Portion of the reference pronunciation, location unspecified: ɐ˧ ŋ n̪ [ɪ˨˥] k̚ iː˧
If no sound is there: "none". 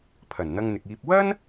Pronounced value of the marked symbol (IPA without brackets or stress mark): ɪ˨